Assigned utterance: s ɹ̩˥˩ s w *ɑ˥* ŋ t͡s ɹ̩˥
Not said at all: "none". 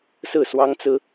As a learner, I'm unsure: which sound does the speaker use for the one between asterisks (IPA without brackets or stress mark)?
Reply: ɑ˥